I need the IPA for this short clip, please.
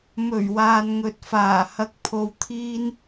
m ɵ˨˩ ɥ w aː˨ n ŋ ɵ˨ t̚ f aː˨˩ h ɐ˧ k̚ pʰ o˧ w t̪ʰ iː˥ n

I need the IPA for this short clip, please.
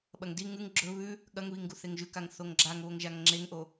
ɓ ɐ ŋ d i ŋ ʉ ŋ ɡ͡ǁ ɵ β ʉ | ɠ ɐ ŋ β i ŋ ɡ u θ e ŋ ʒ ʉ k a ŋ θ o ŋ ɡ͡ǁ a ŋ β o ŋ ʒ a ŋ ŋ͡ǁ e ŋ ʔ o

